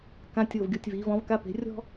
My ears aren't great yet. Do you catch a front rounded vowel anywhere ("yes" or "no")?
no